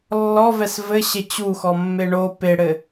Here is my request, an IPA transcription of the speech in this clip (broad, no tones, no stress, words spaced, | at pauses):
lːɔvɛs vɘ ɕet͡ɕuxɔ mːeɳo peɽɘ